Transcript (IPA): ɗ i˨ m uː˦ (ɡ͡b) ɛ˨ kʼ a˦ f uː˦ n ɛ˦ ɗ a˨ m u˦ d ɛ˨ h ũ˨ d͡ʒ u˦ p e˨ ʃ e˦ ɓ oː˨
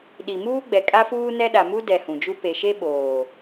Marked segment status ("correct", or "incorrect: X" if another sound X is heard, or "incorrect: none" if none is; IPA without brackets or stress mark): correct